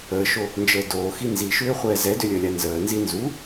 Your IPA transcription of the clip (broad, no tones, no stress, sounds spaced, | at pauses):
əː ʃ o | n d͡ʒ əː d oː x i n z i ʃ ʏː χʷ ɛː z ɛ d ʏ lʲ əː lʲ a n z əː n z i n z u